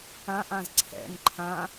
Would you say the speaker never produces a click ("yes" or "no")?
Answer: no